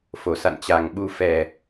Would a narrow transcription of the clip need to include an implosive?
yes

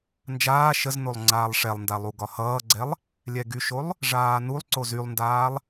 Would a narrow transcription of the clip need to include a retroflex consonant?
yes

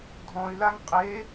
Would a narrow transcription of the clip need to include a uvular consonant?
yes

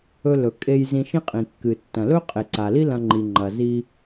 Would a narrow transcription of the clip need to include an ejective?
yes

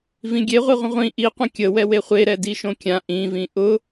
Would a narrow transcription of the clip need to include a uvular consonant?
yes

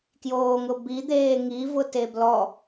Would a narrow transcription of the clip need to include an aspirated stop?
no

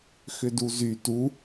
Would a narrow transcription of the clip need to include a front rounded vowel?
yes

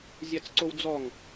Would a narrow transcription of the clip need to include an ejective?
no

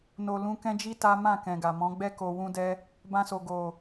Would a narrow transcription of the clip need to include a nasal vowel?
yes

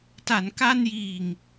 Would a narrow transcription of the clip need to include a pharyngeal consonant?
no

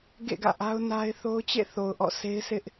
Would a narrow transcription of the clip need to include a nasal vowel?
no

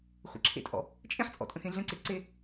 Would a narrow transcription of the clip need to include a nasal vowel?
yes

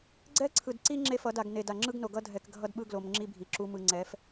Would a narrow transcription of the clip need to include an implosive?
yes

